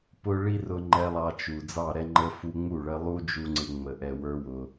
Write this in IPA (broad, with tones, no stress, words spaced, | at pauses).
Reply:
pʊ˧ ɭi˦rʊ˧ŋ͡ǃɛ˧ lˠɑ˧t͡ʃu˨ d͡zɑ˦˨ɾɛ˦ŋ͡ǃə˦fu˦ ŋ͡mu˦˨ɭə˧lˠu˦d͡ʒu˧ ŋ͡ǀɪ˦ŋ͡mə˧ ʔɛ˧wə˞˦wʊ˧